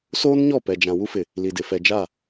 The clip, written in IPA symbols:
soː˦nɲɔ˦˨ pɛ˨d͡ʒã˨ wu˦fɪ˨ | li˨dɪ˨ fɛ˨d͡ʒa˦˨

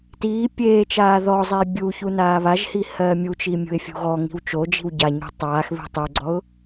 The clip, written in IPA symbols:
tiː pʲeːt͡ʃaː ðɔzˤeː bʲuçu naːβaʒhi hɜːmʲut͡ʃiː mʲṳɪ̯fʲṳɣɔŋi̤w t͡ʃod͡ʒi̤w ɟa ɲṳtˤaːxβi̤ tˤuɡ͡ǀɔʊ̯

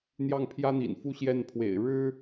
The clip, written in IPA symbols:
n̪jɑ˥˩ŋpʰjä˥n̪ḭ˨˩nfu˥ ɕjɛ˥˩npʰwḛ˨˩ɪ̯ ɻɻ̩˥

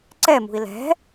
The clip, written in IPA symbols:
ǀɛmṳi̯ lɛ̤

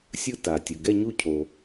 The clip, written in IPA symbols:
sʲɯ˥˧ ta˩tʲɯ˩ ɡɛ˥˧ɲu˥˧cʰo˩

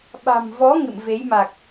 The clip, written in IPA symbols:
ɓa̤˨˩mvɔ˨˦ ŋɨ̰˧˨mve˨˦j ma˨˩k̚

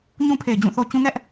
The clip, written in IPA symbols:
ɲũ˦pʰe˨ɪ̯d͡ʑũ˦˨θo˦ t͡ɕũ˦ŋɛ˦ʔ

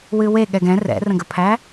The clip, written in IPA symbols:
wɨwe ɠɛɡɛ̃ rɛ̰rə̃ɡəpʰæ

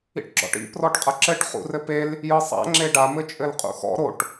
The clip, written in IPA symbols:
ḭʈɡ͡ǁɔ̰ʈḭ prɔʈqʼɐǁɘʈ χṵrɘpel | jɯsˤa̰ ŋ͡ǁeɖa mɘt͡ʃʼɘlqʼṵxɔ̰ ɾoʈ

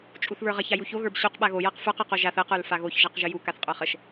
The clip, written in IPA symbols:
t͡ʃʼuθβə˞ʁɐç ajuço ɣə˞bɕuq ɓaɣo jaqfə˞q ə˞qoʒaθ ə qə˞lfaɣoç ʒaqʒəju kaθqʼə˞χəʃ

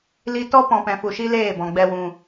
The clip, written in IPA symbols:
li˧ tɔ˦pɔ̃˧pɛ̃˧fu˧ ʃi˦leː˦˨bɔ̃˧ ɡ͡bɛ˧wũ˧

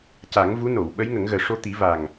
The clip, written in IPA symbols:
ca˨˩˦ŋ vu˧˥no˨˩˨w ɓə˧˥jŋə˨˩˦ŋɣəː˨˩ ʂo˧t̪i˨˩˦ va˨˩ŋ

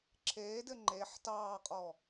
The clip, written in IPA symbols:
ǁʰeːdɘ ŋ͡ǃeħ tɑːqʼɔ

